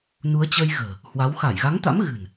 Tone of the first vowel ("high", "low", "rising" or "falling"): rising